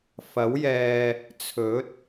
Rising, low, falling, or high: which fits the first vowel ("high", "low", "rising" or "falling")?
rising